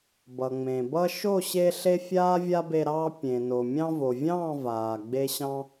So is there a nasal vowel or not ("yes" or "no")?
yes